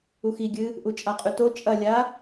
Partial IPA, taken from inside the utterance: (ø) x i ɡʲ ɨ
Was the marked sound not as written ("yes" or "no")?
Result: yes